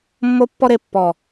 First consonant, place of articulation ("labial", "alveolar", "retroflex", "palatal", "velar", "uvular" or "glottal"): labial